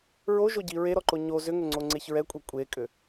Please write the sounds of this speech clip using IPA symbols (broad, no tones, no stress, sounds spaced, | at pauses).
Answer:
ɹ o ʒ o ɟ i ɹ e ɾ ɔ ǃ o ɲ o z ʏ ŋ ʏ ŋ͡ǀ o ŋ͡ǀ e ç ɹ ɛ kʷʼ e kʷʼ e kʼ ʏ